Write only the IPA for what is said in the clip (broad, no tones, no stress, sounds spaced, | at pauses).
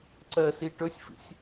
ǀ ɜ s i ʈ ɵ sʲ f ḭ sʲ